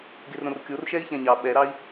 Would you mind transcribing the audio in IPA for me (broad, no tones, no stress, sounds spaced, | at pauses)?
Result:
ɡ e r ɾ õ r kʲ o r ʃ ɛ i̯ ç ɛ̃ ɲ ɑ ɓ ɛ ɾ ɑ i̯